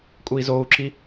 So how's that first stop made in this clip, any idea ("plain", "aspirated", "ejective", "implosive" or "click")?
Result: ejective